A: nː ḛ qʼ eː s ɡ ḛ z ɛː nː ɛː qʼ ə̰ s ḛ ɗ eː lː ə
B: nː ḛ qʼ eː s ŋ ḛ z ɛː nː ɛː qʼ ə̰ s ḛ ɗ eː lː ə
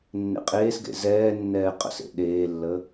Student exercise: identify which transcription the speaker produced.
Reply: A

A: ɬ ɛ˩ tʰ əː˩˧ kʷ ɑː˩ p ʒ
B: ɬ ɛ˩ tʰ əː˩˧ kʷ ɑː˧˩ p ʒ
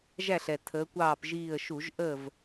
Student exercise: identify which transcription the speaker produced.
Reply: B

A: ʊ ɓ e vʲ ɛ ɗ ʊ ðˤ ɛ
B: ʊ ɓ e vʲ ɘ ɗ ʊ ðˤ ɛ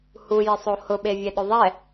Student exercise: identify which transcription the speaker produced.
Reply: A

